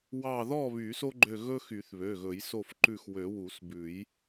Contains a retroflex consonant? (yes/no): no